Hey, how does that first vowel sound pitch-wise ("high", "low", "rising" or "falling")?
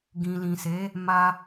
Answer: low